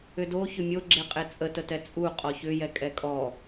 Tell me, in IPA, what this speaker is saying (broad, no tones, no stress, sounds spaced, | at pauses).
ʏ d o ç ʏ mʲ o ɡ͡ǁ e qʼ e t͡sʼ ə t ə t ɛ t͡sʼ u qʼ ɔ ç ʏ j ɛ kʼ ɛ kʼ ɔ